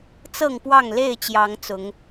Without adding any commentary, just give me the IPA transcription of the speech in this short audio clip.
t͡sɤ˥˨ŋpwɑ˥˨ŋ le˥˨ɪ̯t͡ɕjɑ˨˦ŋ t͡sʊ˨˦ŋ

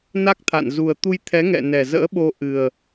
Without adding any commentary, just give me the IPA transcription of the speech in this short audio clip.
na˦˥k̚t̪ʰa̰˧˨n zu˨˩ə̯t̪u˧jt̪ʰɛ˨˦ ŋɛ̰˧˨nɛ˨˩zə̰ː˧˥ɓo˧ ʔɨ˨˩ə̯

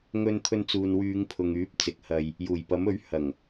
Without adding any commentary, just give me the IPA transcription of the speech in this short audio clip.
ŋɵ˧nt̪ʰɵ˧n t͡suː˨nwyː˨˧ŋ pʰʊ˨ŋyː˨˥p̚ t͡sɪ˨˥k̚hɐ˧j | juː˨˩jpɐ˨˥mɵ˨˥ɥ hɐ˨˩ŋ

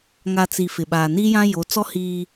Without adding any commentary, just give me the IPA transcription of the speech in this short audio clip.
ŋa˨ t͡si˨ fɪ˨ ɓaː˨ni˦jã˦jo˨˦ t͡sɔ˦ hiː˦

